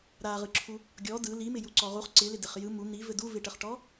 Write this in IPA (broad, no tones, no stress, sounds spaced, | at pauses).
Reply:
ɾ a ʁ ɯ ǁʰ u | ɡʲ ɔ d ɯ l i m ɪ j u ǀ ɔ ʁ u χ ǀ ɪ l ɪ d ɪ χ j ɯ m u n̪ i v ɘ d u v ɪ ʈ ə χ ʈ ɔ